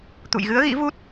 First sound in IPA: t̪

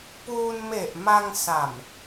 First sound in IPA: p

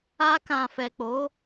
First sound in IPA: a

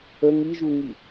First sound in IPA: ə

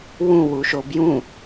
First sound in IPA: w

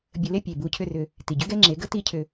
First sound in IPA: bʲ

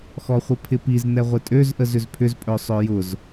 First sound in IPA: x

